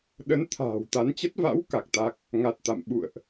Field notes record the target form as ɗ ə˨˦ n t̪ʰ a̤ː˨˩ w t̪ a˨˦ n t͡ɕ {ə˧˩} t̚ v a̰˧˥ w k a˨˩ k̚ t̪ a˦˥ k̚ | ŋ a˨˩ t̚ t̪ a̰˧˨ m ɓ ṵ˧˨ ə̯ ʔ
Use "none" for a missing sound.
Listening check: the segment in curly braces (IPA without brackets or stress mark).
ə˦˥